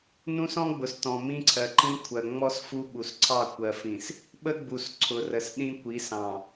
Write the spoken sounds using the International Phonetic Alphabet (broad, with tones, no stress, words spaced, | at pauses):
nũ˦sɔ̃˦ɡ͡bʊ˨stɔ̃˨ mĩ˦ǀʰɜ˨ǃĩ˦ kʷʰɜ˨ŋ͡mɔ˦s fu˦ ɓu˨sǀʰɑ˦˨ kʷɜ˨fĩ˨s | ɓə˦ɡ͡bu˨s ǀʰʊ˨rə˨s ɗĩ˦ kʷi˨˦sɑ̃˨